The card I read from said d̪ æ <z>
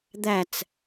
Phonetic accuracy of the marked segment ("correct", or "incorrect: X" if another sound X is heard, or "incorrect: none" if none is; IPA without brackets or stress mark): incorrect: t͡s